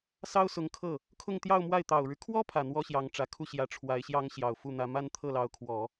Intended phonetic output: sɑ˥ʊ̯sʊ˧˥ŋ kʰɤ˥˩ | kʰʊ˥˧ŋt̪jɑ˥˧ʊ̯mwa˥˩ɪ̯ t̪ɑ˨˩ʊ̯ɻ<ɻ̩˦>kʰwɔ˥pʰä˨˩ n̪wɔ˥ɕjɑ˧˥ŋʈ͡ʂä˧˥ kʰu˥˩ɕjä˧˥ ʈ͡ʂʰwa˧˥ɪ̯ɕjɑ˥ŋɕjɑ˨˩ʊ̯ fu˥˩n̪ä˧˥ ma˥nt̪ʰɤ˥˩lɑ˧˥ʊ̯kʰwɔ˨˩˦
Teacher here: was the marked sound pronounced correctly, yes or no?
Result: yes